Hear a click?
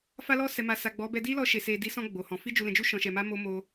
no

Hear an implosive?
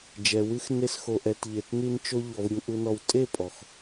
no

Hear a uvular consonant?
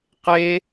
yes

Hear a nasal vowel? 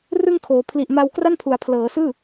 no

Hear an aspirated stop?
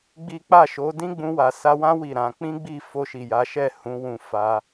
no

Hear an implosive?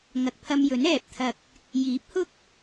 no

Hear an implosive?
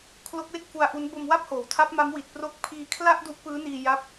no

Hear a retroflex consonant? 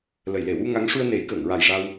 yes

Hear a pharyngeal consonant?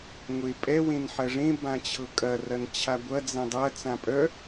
yes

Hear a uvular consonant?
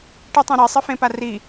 no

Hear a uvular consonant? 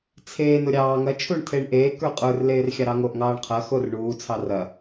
yes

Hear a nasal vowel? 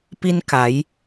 no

